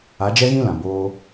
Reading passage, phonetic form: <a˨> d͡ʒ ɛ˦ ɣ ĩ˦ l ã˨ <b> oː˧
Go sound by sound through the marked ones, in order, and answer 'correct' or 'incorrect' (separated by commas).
incorrect, correct